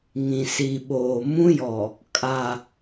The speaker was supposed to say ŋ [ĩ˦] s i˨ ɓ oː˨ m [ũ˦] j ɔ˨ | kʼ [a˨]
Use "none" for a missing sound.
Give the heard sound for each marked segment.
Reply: ĩ˨, ũ˦, a˨

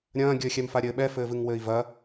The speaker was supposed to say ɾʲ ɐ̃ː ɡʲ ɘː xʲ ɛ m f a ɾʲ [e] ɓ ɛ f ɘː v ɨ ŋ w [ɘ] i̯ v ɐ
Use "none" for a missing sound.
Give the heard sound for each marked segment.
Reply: ɘ, ɘː

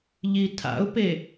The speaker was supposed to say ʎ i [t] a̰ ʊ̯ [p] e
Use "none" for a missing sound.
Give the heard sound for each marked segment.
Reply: tʰ, p

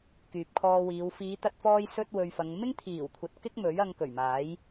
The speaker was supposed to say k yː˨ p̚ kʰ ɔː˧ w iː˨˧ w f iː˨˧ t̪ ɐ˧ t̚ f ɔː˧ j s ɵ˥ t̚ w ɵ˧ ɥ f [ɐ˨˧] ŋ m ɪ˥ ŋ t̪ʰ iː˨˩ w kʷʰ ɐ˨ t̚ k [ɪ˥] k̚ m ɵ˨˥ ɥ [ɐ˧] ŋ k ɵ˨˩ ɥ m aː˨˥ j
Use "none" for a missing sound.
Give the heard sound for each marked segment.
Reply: ɐ˨˧, ɪ˥, ɐ˧

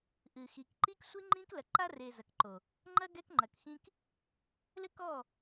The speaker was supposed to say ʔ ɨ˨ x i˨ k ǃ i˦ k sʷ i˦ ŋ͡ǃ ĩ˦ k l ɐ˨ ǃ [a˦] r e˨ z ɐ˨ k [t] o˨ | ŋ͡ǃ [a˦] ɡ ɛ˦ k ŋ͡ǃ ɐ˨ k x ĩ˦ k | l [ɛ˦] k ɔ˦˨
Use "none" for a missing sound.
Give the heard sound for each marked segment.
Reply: a˦, ǃ, ɐ˦, ɘ˦

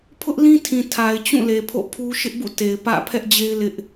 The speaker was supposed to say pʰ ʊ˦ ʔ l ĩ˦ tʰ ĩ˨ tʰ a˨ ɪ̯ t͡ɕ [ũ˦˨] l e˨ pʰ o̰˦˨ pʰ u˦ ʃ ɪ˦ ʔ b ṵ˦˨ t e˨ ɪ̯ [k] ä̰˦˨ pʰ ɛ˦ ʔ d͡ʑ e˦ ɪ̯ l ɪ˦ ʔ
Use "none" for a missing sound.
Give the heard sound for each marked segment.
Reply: ũ˦˨, p

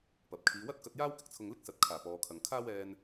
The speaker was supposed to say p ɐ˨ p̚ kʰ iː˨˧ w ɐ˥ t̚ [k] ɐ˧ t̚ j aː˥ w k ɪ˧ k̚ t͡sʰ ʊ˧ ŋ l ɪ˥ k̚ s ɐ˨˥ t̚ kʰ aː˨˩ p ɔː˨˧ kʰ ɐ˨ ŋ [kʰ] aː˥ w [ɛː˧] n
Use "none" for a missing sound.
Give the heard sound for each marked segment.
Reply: k, kʰ, ɛː˧

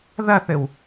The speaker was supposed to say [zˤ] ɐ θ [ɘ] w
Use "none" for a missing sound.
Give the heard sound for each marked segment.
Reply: ð, ɘ

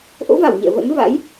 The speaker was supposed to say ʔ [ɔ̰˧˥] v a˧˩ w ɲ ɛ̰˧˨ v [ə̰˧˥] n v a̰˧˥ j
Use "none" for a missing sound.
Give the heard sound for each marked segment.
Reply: o̰˧˥, ə̰˧˥

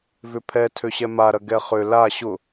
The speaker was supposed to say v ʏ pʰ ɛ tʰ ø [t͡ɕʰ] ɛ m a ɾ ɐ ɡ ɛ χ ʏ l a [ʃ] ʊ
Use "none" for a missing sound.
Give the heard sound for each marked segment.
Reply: ɕ, ɕ

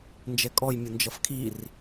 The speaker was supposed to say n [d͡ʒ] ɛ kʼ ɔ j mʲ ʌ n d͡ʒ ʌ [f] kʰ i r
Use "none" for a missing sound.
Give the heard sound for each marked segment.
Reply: d͡ʒ, f

